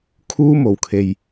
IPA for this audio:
kʰuː˥mo˨˩w kʰe˨j

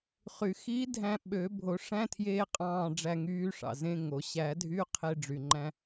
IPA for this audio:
χy˨˩˦xi˧˥dʱæ̃˧ ɓø˨˩˦bʱo˨˩˦ ʂæ̃˧˥˧tʰjeː˧qʼɑ̃ː˧˩ ɖ͡ʐæ˧ŋyː˧˥ʂɑ̰˩zẽ˧˥˧ ŋo˩ ɕæ˨˩˦dʱy˧˥˧qʰe˧ ɖ͡ʐy˩ŋ͡ǃæ̃˧

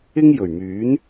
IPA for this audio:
ɪ˥ŋjɵ˨˩ɥmyː˨˥n

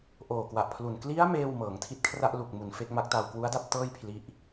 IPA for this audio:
ʔoː˨˩kwa˨˩ʔpʰlu˨˩n kli˦˥a̯ meː˥˩w mɤː˩˦ŋtʰi˥˩t̚ kʰra˥˩ʔlu˨˩k̚mu˨˩n fe˥˩k̚ma˦˥k̚taː˧w kwu˦˥a̯da˥˩p̚tɤː˥˩j pʰli˥˩ʔ

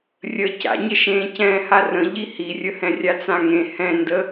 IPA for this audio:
rʲə ca̰ɲəʃẽː cɛ̃ːharə̃ ʎihirʲə hɛ̃rʲat͡sãŋẽ hɛ̃ndə

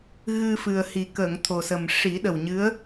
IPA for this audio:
ɣɨ˧fɨ˨˩ə̯hi˨˩ kə˨˩˨ŋ t̪ʰo˨˩sə˨˩m ʂi˨˩˦ɗə˨˩wɲɨ˧˥ə̯

